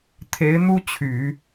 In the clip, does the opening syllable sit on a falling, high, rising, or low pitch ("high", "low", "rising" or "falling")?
rising